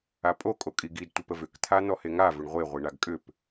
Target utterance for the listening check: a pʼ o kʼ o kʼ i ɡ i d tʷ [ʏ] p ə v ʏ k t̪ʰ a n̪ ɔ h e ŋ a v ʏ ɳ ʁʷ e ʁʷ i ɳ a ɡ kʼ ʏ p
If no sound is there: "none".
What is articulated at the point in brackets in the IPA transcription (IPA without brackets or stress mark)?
ə